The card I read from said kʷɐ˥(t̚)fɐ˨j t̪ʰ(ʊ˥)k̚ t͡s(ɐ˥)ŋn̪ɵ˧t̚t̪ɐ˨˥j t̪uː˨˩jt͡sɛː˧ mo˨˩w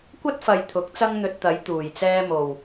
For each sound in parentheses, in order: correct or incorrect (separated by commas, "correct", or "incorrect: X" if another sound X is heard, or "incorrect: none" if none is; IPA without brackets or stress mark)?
correct, incorrect: ʊ˨˥, correct